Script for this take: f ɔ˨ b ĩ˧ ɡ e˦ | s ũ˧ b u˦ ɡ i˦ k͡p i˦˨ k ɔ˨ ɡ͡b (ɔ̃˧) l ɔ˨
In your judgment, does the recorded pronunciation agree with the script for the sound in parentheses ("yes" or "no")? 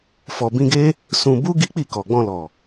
yes